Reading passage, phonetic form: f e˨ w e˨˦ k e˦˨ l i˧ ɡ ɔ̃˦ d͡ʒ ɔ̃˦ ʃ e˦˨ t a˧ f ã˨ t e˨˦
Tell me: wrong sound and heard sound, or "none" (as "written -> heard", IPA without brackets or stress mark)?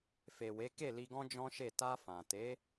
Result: none